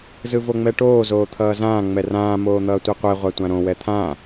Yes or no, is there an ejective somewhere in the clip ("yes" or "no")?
no